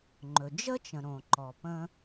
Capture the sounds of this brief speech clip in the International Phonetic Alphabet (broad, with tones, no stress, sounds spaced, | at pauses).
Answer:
ŋ͡ǃ ɵ˩ d͡ʒ ə˥ t͡ʃ ə̃˩ ɾ õ˩ ǃ ɔ˩ p ə̃˧